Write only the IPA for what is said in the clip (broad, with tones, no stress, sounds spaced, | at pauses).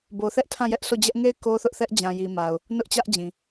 b o˨ θ ɛ˦ ʔ tʰ ã˦˨ j ɛ˦ ʔ sʰ o˦˨ d͡ʑ ɛ˦ ʔ ŋ e˦˨ ɪ̯ k o˦ θ ʊ˦ ʔ θ ɛ˦ ʔ d͡ʑ ã˨ j i˨ m a˨ ʊ̯ | n ʊ˦ ʔ t͡ɕ ä˦ ʔ d͡ʑ ĩ˨